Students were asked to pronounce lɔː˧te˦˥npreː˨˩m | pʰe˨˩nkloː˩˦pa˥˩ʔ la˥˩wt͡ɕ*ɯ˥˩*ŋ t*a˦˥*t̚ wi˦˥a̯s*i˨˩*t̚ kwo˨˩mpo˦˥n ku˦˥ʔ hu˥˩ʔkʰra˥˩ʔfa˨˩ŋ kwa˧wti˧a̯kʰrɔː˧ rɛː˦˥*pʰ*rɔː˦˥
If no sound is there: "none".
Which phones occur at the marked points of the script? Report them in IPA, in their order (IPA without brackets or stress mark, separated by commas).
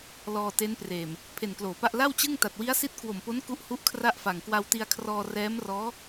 ɯ˥˩, a˨˩, i˦˥, m